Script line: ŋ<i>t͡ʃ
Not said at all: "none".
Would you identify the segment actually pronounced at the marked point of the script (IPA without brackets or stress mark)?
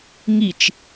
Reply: i